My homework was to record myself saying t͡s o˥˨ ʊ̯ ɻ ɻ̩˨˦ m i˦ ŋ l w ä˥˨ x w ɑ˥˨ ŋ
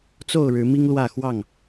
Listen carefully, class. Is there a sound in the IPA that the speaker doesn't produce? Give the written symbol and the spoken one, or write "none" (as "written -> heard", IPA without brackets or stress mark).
none